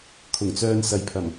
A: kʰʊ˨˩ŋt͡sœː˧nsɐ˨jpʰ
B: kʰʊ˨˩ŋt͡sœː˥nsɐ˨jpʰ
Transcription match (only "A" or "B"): A